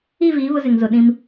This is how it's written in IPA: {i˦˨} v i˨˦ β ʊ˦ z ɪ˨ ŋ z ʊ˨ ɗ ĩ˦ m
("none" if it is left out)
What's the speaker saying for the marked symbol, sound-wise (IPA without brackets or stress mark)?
i˦˨